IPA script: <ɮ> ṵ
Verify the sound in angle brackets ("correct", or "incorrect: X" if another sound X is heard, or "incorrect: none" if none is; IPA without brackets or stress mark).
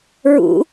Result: incorrect: ɹ